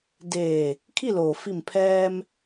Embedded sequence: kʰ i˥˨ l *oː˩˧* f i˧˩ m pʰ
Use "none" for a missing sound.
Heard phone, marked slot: oː˩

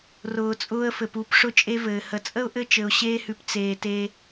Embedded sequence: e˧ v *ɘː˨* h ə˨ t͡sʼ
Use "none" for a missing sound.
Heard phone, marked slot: ɘː˨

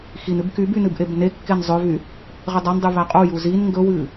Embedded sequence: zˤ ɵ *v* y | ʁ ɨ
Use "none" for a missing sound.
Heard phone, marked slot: v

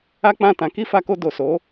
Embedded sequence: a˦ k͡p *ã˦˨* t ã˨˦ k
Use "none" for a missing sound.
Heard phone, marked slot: ã˦˨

